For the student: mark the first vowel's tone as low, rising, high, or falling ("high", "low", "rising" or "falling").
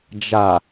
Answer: low